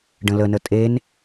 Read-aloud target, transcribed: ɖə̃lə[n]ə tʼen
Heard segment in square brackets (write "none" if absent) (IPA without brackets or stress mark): n